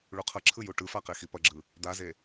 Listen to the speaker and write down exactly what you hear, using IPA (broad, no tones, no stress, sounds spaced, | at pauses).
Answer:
ɭ u qʰ ʌ ǁʰ ɯ j u ʈ ɯ f a q e x i p ʌ ɡ͡ǁ ɯ | d̪ a z e